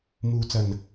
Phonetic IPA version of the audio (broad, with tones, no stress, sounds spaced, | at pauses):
m uː˨ t͡s ɐ˨˩ n